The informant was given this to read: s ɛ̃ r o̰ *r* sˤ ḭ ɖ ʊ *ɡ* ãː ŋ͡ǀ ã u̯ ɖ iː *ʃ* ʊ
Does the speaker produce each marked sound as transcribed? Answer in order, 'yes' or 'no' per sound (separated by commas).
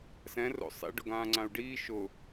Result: no, yes, yes